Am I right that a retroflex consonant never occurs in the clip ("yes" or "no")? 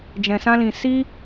yes